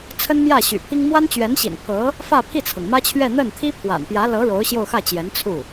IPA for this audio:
t͡sʰ ə˥ n m j ä˥˩ ɕ y̰˨˩ pʰ i˥ ŋ m w a˥ n t͡ɕ ɥ ɛ˧˥ n ɕ ḭ˨˩ n pʰ ɤ˧˥ | f ä˥˧ pʰ i˥˩ t͡sʰ ɤ˩ ŋ m ä˥ t͡ɕʰ ɥ ɛ˥˧ n̪ ə˥˩ n t̪ʰ i˥ pʰ w a̰˨˩ n p j ä˧˥ l ɤ˧˥ ɻ o˧˥ ʊ̯ ɕ j o˥˧ ʊ̯ x ä˥˩ t͡ɕ j ɛ˧˥ n t͡sʰ u˥˩

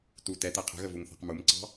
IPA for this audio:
t u t ɛ t ɛ qʰ ə̤ ɣ ə v u ŋ θ ɑ̤ q m u m ǀ ɑ̤

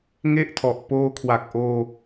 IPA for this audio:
ŋ e˥˩ ʔ tʰ ɔ˨˩ ʔ p oː˧ kʰ w a˨˩ k̚ ʔ oː˧

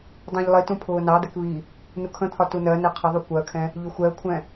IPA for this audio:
dˤ ũ ʎ lˠ i t ũ pʰ ʊː n ɑ d̪ ɛ k β i | n u kʰ ə̃ t̪ʰ ɒ t u n ɜ n ɛ qʰ ə ðˤ u kʷ ɜ kʰ ɛ̃ | ʎ ʊ xʷ ɛ ə̯ kʷʰ ɛ̃

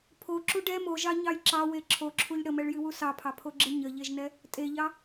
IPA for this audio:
pʰ o ǁ u ɖ ɛ m o ʒ ɑ ɲ ɑ j ǁ ɑ w e ǁʰ o ǁʰ u ʎ ɽ ə m ɛ ɭ j ɨ w u s ɑ pʰ ɑ pʰ o ɡ͡ǁ ɨ ɲ ə ʎ e ʒ n ɛ | tʼ e ʎ ɑ

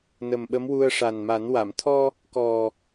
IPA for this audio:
n ə˨˩ m ɓ ə˧˥ m w u˧ ə̯ ʂ a˨˩ n m a˨˩˦ n w a˨˩˨ m t̪ʰ ɔ˧ | k ɔ˨˩

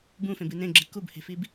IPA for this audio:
b ũ f ẽ b ɨ n ẽ ɡ͡ǁ ɨ k u b h e̤ f i b

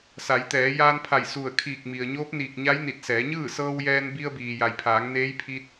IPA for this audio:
s a˩˧ j t̪ ɛː˩˧ j aː˧ n pʰ a˧˩ j s u˧˩ ə̯ kʰ iː˧˩ k̚ m i˩ ə̯ ɲ oː˧˥ p̚ n iː˧˩ k̚ ɲ a˧˥ j n i˧˩ t̚ s ɛː˩˧ ɲ ɯː˥˨ s ɤː˧ w j ɛː˧ n b i˧ ə̯ b iː˩ j a˩ j pʰ aː˩˧ ŋ n eː˧˥ j pʰ i˧ t̚

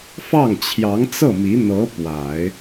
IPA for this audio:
f ɑ˥˩ ŋ t͡ɕʰ j ɑ˧˥ ŋ t͡s ɤ˥˩ m i˧˥ n̪ ɤ˧˥ p w a˨˩˦ ɪ̯

